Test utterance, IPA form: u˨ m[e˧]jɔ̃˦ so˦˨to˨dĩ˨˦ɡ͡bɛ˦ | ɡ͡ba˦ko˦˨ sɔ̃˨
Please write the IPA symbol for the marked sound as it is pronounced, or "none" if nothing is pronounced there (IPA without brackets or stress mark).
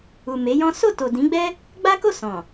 e˨˦